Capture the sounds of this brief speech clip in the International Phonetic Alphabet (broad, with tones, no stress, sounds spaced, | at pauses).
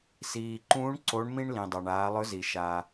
s iː˩ ǃ ũː˧˥ ɳ ǀ o˧˥ ɳ m ĩ˥ ɳ l ĩ˩ dˤ a˩ ɳ aː˩˧ lˠ ɵ˧˥ z i˩ ʃ a˩